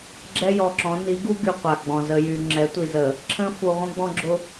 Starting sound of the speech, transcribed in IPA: ɡ͡ǁ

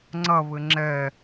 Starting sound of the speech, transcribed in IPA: ŋ͡ǀ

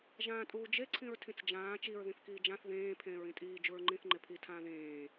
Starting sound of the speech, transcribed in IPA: ʒ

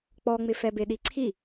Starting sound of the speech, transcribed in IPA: k͡p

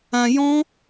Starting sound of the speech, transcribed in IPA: ã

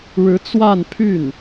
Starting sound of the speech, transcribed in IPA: ɻ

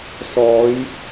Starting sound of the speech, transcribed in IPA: s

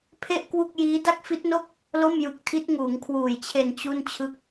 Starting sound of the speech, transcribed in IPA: pʰ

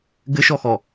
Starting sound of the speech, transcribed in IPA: ɡ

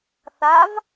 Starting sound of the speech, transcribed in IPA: θ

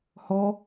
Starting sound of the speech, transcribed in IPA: h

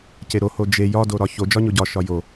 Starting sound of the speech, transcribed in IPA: c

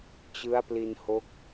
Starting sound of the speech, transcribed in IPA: t͡ɕ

